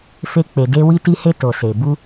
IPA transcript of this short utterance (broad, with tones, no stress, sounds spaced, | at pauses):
f e˧ k͡p e˨ d e˧ w i˧ t i˧ h e˧ t o˨ s e˨ b u˧